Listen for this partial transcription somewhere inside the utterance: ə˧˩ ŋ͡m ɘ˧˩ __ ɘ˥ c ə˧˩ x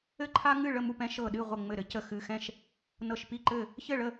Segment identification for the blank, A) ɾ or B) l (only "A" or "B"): A